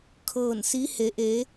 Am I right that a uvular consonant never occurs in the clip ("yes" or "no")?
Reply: yes